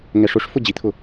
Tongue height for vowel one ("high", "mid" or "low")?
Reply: mid